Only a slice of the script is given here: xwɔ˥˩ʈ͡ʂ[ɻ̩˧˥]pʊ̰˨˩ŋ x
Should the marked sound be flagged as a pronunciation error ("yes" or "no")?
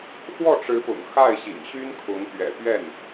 no